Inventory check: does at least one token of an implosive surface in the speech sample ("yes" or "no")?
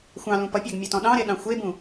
yes